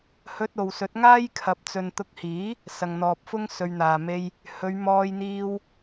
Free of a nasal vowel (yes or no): yes